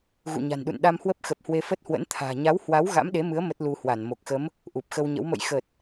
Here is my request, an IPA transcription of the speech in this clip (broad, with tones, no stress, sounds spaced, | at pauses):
ɣ ṵ˧˨ ɲ a̤˨˩ n ɗ ṵ˧˨ n ɗ a˧ m h w ə˦˥ p̚ x ə˨˩ p̚ h w e˧ f ə˦˥ t̚ h w ə̰˧˥ n t̪ʰ a̤ː˨˩ ɲ a˨˦ w h w a˨˦ w ɣ a̰˧˥ m ɗ e˨˦ m ɨ˨˦ ə̯ m ə˦˥ t̚ l u˧ h w a˧˩ n m o˨˩ k̚ x ə˨˦ m | ʔ u˨˩ p̚ x ə˧ w ɲ ə̰˧˥ w m ə̰˧˨ j x ə˨˩ t̚